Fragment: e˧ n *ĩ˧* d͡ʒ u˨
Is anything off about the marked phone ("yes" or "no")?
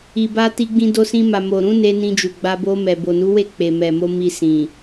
no